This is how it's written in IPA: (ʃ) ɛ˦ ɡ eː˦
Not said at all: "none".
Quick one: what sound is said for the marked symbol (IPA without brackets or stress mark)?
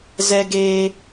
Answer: z